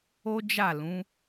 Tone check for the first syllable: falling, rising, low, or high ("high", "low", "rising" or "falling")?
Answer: high